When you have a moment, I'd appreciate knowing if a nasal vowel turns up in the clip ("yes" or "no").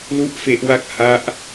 no